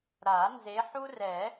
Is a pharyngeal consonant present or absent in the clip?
present